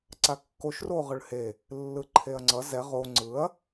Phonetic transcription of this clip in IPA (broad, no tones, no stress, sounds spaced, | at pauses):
ǀ a kː o ʃ r o ʁ ɯ ɭ h e | lː ɯ ǃʰ e ɐ̯ ŋ͡ǀ ʌ z ɛ ʁ o ŋ͡ǀ ɯ ɐ̯